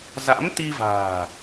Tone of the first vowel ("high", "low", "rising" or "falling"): rising